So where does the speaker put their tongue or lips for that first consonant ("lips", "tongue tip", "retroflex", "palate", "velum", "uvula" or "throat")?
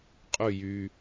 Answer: uvula